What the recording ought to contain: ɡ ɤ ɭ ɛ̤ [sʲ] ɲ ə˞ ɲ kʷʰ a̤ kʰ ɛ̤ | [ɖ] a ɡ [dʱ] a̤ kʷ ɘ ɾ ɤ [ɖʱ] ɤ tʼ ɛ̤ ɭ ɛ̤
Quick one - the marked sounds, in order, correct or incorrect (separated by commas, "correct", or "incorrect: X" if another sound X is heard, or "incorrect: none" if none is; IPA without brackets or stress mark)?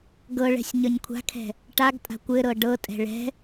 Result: correct, incorrect: ʈ, incorrect: tʼ, incorrect: ɖ